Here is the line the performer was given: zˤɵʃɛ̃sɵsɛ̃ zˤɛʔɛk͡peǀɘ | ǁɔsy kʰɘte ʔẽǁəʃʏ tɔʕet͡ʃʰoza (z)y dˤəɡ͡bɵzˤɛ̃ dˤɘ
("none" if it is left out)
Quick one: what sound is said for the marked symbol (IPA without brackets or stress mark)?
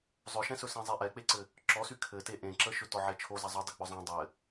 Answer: zˤ